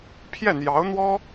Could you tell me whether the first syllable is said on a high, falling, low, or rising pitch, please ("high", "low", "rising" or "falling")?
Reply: falling